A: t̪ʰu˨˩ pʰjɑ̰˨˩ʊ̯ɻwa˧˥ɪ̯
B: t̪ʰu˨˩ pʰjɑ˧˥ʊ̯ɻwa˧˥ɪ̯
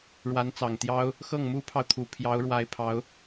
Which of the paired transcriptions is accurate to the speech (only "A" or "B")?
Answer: B